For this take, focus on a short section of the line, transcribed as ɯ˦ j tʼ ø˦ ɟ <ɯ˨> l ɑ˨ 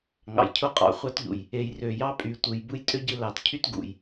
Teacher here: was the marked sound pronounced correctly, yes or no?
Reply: yes